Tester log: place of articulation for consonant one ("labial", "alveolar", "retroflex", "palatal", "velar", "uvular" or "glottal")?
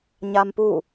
palatal